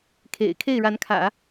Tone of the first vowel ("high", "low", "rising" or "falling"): low